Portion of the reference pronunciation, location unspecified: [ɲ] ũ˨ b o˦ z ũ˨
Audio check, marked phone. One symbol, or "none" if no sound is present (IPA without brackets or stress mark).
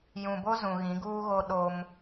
j